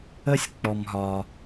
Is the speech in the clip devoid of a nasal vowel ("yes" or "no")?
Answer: yes